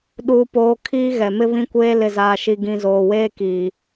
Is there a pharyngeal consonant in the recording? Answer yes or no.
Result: no